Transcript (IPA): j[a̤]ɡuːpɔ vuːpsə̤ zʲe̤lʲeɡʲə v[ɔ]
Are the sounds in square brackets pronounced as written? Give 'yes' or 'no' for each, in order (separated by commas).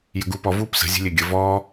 no, no